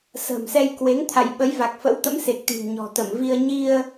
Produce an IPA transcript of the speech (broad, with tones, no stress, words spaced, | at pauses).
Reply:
sə̤ː˨˩msɛ˧j kwe˨˦ŋt̪ʰa̰˧˨jɓə˨˦j va˨˩k̚fə̰˧˥wt̪ə̰˧˥mse˨˩k̚ t̪i̤˨˩ŋɲɔ̤˨˩t̪ə˧˩mvi˧ə̯ ɲi˧ə̯